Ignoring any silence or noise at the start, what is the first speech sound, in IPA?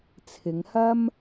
t͡sʰ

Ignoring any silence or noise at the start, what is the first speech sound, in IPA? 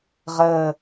ʁ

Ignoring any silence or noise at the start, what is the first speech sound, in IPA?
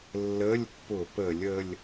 lː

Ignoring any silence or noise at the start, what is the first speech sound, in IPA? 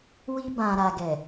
w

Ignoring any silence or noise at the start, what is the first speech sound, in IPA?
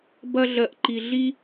b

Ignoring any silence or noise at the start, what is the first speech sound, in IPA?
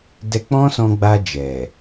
d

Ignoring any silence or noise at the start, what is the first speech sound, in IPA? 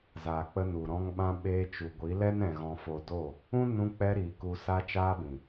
z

